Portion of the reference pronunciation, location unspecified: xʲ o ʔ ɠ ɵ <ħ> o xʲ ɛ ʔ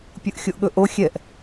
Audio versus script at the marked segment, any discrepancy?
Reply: yes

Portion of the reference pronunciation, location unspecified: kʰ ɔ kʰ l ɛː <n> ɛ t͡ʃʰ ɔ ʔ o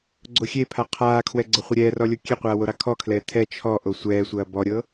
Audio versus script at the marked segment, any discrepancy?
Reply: yes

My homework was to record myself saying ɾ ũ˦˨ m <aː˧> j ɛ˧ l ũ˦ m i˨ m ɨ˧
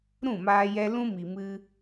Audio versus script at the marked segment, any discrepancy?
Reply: no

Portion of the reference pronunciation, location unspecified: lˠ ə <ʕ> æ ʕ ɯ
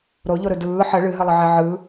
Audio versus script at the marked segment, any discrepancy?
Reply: no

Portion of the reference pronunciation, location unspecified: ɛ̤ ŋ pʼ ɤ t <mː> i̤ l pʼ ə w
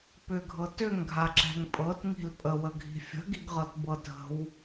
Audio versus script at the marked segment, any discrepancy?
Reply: yes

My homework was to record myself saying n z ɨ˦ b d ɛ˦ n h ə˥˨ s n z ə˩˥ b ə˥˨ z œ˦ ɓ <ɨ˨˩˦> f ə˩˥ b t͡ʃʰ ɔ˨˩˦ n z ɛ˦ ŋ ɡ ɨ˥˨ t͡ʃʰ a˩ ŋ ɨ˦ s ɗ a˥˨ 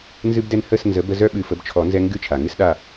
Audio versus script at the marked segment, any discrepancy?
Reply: no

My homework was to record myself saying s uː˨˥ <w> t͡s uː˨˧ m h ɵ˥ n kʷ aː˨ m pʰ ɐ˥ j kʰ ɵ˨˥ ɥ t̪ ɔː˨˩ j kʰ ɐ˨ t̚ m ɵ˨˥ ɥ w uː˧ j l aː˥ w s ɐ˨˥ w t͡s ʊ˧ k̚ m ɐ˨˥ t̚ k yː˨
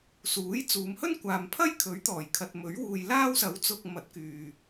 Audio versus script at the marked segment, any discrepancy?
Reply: yes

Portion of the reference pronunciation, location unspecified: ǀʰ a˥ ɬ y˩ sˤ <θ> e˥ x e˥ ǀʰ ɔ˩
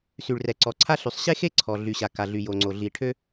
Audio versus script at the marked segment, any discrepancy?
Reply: yes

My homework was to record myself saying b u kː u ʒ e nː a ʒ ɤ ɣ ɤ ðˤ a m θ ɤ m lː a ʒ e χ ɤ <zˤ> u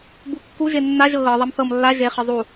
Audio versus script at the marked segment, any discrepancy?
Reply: no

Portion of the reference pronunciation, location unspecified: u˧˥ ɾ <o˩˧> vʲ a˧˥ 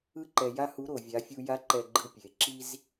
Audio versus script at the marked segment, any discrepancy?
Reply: no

